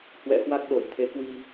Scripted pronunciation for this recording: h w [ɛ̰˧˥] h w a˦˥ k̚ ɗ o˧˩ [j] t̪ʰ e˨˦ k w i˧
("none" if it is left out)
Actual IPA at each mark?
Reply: ɛ̰˧˥, j

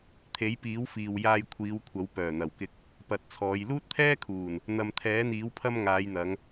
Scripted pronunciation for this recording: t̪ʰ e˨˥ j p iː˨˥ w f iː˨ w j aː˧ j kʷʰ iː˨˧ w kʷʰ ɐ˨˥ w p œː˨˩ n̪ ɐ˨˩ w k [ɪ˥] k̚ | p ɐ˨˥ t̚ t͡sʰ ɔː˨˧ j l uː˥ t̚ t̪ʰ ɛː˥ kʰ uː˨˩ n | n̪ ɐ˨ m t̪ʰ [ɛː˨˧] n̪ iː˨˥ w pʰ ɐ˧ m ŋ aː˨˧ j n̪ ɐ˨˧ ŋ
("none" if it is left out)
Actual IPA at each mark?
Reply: ɪ˨, ɛː˨˥

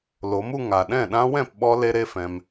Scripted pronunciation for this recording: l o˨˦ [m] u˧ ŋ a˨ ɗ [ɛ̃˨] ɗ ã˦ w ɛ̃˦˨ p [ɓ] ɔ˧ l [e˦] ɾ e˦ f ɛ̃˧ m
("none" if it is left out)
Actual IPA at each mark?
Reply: m, ɛ̃˦˨, ɓ, e˦

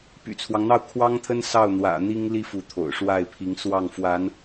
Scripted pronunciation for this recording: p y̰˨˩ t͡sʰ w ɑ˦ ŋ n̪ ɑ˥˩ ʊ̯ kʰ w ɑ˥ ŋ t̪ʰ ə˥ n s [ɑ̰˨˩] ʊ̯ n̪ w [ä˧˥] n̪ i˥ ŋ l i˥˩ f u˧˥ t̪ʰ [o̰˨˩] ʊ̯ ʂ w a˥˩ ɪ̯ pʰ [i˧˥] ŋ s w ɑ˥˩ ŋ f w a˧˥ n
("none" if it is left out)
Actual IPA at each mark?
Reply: ɑ˥˩, ä̰˨˩, o̰˨˩, i˧˥

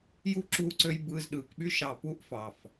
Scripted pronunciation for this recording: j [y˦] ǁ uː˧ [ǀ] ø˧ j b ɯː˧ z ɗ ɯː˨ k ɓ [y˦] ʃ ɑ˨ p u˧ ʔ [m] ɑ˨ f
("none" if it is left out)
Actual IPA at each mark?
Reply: u˦, ǀ, y˦, f

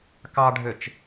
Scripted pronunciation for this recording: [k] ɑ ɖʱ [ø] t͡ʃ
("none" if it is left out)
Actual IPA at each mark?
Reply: k, ø

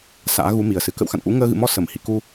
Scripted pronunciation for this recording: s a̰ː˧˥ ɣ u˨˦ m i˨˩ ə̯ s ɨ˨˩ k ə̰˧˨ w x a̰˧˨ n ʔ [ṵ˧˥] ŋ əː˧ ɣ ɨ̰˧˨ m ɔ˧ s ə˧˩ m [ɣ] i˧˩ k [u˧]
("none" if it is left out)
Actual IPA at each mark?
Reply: ṵ˧˥, h, u˧

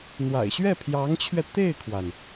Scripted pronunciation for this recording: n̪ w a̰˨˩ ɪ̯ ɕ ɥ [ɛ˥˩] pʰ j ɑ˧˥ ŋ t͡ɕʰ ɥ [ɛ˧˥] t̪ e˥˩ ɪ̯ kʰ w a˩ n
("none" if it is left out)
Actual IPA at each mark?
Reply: ɛ˥˩, ɛ˧

